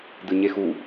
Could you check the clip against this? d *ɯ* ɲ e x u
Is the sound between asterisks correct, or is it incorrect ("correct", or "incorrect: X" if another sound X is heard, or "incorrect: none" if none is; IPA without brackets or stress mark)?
correct